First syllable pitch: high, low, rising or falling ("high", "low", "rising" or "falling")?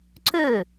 falling